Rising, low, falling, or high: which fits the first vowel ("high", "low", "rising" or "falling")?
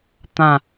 falling